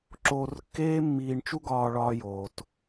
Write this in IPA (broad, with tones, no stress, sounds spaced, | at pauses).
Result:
ǁ oː˧ r kː eː˥ mː iː˧ ɳ t͡ʃ u˥ ɡ ɒː˧ ɭ ɒː˧ j oː˩ t